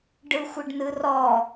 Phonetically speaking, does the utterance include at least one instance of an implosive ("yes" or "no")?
no